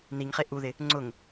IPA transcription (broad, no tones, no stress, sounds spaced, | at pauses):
n i ŋ χ e ʔ u ð ɪ | ŋ͡ǀ ʊ ŋ